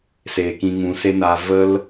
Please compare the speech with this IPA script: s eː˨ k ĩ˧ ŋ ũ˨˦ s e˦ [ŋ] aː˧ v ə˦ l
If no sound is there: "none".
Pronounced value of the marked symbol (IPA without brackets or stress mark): n